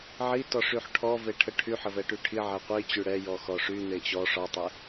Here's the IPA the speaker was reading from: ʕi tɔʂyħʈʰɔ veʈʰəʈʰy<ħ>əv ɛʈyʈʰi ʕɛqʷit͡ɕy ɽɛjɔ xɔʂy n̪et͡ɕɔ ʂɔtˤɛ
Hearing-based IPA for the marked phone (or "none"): ħ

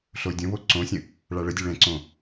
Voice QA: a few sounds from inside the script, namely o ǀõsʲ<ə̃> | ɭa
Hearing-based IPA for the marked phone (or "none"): ə̃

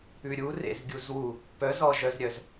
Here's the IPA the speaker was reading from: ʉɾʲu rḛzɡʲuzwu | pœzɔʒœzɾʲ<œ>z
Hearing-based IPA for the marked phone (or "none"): œ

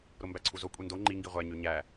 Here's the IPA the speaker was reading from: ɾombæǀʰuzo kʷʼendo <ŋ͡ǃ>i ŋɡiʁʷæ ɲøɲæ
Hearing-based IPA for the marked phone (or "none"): ŋ͡ǃ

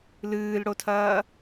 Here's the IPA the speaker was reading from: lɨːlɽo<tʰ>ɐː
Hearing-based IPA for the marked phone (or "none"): tʰ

